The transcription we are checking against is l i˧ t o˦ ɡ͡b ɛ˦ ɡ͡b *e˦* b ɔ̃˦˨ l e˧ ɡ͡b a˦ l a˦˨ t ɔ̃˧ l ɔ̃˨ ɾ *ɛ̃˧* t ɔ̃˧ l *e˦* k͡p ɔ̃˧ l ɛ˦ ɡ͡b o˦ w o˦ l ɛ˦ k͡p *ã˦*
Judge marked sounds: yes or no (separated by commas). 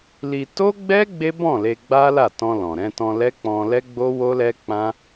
yes, yes, no, yes